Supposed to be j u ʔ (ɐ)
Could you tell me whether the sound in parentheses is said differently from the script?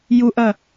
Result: no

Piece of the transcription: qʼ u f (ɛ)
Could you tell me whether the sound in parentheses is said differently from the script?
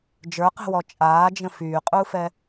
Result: no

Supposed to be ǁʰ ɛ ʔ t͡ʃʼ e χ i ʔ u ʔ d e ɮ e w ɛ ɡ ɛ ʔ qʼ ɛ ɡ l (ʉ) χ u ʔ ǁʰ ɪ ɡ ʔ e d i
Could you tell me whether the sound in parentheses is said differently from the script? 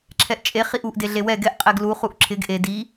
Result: yes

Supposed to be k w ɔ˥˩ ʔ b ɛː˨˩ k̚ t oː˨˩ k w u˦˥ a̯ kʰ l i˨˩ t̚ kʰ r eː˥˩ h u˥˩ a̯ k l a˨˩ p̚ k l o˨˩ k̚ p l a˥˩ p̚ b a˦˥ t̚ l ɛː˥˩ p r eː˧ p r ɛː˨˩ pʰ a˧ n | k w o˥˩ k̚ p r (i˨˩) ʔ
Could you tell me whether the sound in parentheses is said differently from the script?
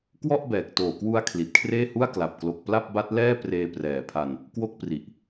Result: no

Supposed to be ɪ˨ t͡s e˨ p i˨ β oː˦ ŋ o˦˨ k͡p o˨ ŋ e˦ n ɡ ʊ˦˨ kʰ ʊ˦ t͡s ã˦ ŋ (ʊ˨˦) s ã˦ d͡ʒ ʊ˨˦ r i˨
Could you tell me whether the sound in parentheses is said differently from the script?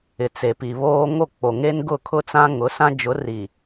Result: no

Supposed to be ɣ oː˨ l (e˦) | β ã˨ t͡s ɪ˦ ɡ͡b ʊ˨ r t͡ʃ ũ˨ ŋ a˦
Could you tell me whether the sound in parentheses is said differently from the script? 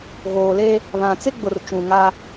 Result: no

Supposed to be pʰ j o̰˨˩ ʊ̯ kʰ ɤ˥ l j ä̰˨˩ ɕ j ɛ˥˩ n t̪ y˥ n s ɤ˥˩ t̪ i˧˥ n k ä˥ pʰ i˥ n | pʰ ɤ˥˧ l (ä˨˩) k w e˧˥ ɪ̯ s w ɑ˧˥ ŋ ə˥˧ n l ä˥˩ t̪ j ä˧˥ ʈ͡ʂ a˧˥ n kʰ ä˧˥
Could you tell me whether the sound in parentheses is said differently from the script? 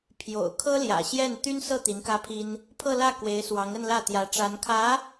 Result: yes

